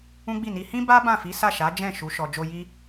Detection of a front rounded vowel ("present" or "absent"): absent